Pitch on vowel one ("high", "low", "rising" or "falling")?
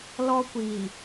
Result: high